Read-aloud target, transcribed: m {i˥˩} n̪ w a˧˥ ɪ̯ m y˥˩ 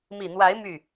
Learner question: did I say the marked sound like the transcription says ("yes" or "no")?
no